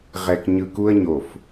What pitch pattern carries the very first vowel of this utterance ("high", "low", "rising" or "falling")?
low